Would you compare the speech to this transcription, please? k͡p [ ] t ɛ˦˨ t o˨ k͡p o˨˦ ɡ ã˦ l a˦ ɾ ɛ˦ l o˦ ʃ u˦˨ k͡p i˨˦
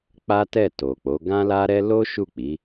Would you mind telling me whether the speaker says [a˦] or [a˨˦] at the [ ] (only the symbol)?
a˦